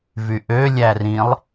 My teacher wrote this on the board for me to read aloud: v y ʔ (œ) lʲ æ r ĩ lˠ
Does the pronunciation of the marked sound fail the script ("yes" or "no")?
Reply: yes